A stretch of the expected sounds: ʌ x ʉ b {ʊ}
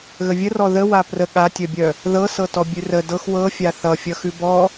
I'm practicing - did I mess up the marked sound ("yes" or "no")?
yes